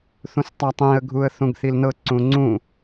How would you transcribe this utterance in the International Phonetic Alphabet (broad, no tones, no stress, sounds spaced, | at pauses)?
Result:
θ ũ s tˤ a tˤ ĩ ə̯ ɡʱ u ə̯ θ ũ ɡ θ i l n ɤ ǀ ũ ŋ͡ǀ ũ